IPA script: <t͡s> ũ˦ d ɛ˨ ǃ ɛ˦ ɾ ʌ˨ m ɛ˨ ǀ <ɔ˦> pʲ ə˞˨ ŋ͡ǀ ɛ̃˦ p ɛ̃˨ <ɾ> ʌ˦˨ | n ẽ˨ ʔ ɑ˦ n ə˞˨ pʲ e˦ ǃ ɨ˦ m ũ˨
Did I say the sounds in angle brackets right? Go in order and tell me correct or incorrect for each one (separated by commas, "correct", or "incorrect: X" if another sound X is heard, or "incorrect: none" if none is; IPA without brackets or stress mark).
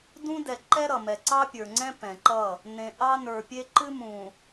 incorrect: d, incorrect: ɑ˦, incorrect: ǃ